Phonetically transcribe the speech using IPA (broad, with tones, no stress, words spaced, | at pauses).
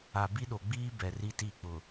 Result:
a˨bi˦ɗo˨ɡ͡biː˦ bɛ˨ri˦ti˦˨ k͡pʊ˨